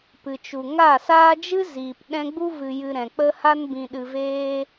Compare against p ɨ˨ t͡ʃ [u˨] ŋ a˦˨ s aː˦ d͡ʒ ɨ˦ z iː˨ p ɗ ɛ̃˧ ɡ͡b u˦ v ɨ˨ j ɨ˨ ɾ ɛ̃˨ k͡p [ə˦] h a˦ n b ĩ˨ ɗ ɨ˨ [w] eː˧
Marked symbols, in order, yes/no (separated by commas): yes, yes, no